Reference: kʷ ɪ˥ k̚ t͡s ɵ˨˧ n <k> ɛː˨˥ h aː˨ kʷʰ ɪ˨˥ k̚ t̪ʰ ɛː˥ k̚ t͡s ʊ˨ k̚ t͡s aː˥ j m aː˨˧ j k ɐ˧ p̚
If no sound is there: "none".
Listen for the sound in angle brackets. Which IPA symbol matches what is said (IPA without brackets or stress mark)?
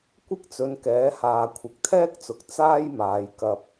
k